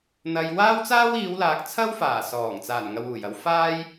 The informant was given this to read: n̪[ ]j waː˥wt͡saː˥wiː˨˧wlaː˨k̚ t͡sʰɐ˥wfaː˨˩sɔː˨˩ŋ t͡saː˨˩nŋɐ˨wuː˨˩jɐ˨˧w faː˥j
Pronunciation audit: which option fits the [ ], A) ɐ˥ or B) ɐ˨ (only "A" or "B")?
B